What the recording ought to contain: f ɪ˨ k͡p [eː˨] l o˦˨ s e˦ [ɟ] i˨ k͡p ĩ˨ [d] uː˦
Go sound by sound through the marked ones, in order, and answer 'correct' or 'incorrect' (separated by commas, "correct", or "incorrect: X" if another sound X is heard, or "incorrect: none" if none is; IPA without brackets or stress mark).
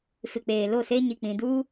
correct, incorrect: ɲ, correct